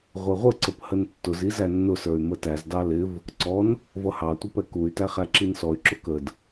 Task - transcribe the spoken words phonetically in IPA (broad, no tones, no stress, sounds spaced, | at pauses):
ʁʷ ɛ ʁʷ ə ǀ ə p h ə n tː ʊ z i z æ nː ʊ s ə˞ y̯ m ə t æ z d ɑ l ɪ v | ǀ ɔ n | v ʌ h ɑ tʷ ɪ p ɛ k u y̯ t æ χ æ ǁ i n s ɔ y̯ ǁ ʊ k ə d